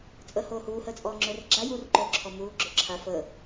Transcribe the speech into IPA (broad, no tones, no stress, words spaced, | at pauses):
t͡sʼəːhoːhuː həːt͡sʼɔːŋ͡ǁɵːrɡ͡ǁa jur ǃoːǁʰɔmuː ɡ͡ǁɵǁʰa fəː